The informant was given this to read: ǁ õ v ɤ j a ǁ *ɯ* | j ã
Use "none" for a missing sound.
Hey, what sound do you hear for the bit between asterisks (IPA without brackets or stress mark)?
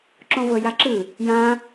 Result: ɯ